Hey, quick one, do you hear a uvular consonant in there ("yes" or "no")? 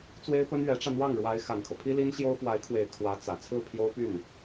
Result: no